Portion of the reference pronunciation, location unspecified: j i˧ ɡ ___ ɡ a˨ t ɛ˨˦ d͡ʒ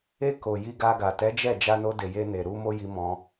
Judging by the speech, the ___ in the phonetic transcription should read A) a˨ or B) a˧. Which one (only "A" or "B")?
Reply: B